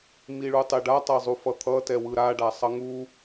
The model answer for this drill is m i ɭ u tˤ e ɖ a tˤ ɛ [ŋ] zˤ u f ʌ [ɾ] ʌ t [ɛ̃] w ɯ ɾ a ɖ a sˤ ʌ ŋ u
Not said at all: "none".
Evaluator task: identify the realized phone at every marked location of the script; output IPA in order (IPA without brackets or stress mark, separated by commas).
none, t̪ʰ, ɛ